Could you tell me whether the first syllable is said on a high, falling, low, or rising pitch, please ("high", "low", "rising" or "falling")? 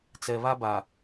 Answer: low